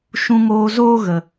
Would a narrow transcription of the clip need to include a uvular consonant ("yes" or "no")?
no